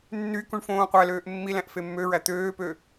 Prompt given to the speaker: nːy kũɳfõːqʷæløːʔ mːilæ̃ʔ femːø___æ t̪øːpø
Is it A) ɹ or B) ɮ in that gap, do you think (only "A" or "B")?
A